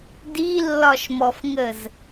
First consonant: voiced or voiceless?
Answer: voiced